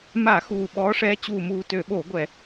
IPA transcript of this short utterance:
m a˧˩˧ x uː˨˩ ɓ ɔː˨˦ ʂ ɛː˨˦ t͡ɕ uː˨˩ m uː˨˩ t ø˧˩˧ ɓ o˧˩˧ ɡʷ ɛ˧˩˧

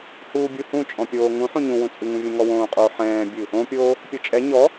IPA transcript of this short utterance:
h uː bʲ u h ũ t͡ʃʼ ɔ̃ pʲ oː ŋ ũ ħ ũ ɲ ũ w ũ t͡sʼ ɨ ŋ ũ vʲ ɛ̃ ŋ ɔ w õː qʼ o ħ ɛ̃ː bʲ ɨ | õ pʲ oː | pʲ o t͡ʃʼ ɛ ɲ ɔ

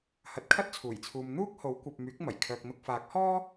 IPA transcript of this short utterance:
h ɐ˨ t̚ kʰ ɐ˥ t̚ t͡sʰ uː˨˩ j t͡sʰ uː˨ m n̪ uː˥ k̚ h o˨˥ w kʷ ɐ˨ p̚ m yː˨˥ k̚ m ɐ˨˩ j kʰ œː˨ k̚ n̪ ʊ˧ k̚ f aː˨˥ k̚ h ɔː˥

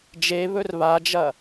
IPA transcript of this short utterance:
d͡ʒ e β ɵ r β a d͡ʒ ɐ

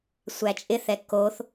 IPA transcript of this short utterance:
sʷ æ t͡ʃʼ ɪ θ ɛ k o θ

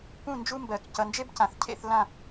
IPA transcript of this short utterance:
p ũ˥˧ n d͡ʒ u˥ m b ɜ˧˩ k c ʌ˧ n d͡ʒ e˥ b c ã˧˩ θ cʰ ḛ˥˧ θ l ã˥˧

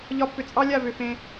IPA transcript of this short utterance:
ʎ ɒ˧ pː ʏ˨ t͡sʼ ɑ˦ lʲ a˦˨ v ʏ˨ f ẽ˧

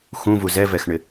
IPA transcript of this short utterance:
x ũ v u z ɛ v ɛ x ɳ ɪ

